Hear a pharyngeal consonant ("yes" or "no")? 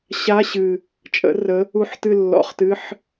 yes